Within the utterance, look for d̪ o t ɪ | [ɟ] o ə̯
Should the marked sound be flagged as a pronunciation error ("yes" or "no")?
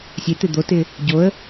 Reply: no